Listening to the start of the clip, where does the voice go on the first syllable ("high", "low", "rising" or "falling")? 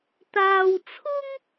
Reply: high